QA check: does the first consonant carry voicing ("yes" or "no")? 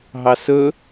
yes